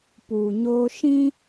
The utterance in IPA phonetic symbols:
p uː˨ ɲ oː˦ ʃ ĩ˦

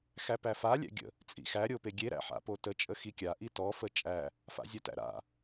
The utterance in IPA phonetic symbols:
x æ p æ f a lʲ æ̰ ɡʲ ə̰ | t͡sʼ ḭ x æ ɾʲ o p e ɡʲ e ɾ æ̰ ħ a̰ p o t ə t͡ʃʼ ə x i kʲ a ʔ i t ɔ f ə t͡ʃʼ æ | f a̰ zʲ a t æ̰ ɾ a̰

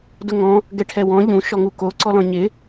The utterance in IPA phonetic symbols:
d ʊ ŋ ɔ̃ | ɡ ɛ ʈʰ ɛ w ɔ̃ ʎ ũ ʃ ɔ ŋ u k o ǀ ɔ l ɔ̃ ɲ ɪ

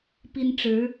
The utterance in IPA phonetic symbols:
p i˥ n ʈ͡ʂ ɻ̩˧˥

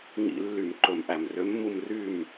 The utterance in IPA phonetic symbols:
ŋ ḭ˧˩˧ lː y˧˩˧ m ǃ ɵ˧˩˧ m ʔ æ˨˩ m r ø˨˥ mː u˥˨ m r y˥˨ m

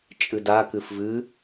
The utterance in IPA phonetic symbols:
t͡ʃʼ ɨ d a k ɨ f v ɨ

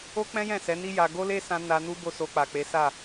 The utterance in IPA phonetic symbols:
o˦ k͡p ɛ̃˦ j ɛ̃˦˨ s ɛ˨˦ n i˦ j a˧ ɡ o˦ l e˦ s ã˧ n a˧ n u˦ b o˦˨ s o˧ k͡p a˨ k͡p e˨˦ s a˦˨

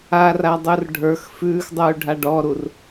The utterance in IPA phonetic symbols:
a r a dˤ u r ɖʱ ə˞ x f ʉː x dˤ ʉː ɖʱ a ɖ ɔ ɾ u r

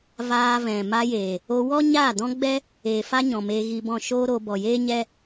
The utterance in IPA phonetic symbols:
v aː˧ v ɛ̃˨ m a˧ j eː˨ | o˧ w ɔ˦ ɲ aː˦˨ d ɔ̃˦ ɡ͡b ɛ˦ | eː˨ f a˦ ɲ ɔ̃˨ m eː˧ ɣ i˧ b ɔ̃˦˨ ʃ oː˦ ɾ o˧ b ɔ˨ j eː˦ ɲ ɛ˦

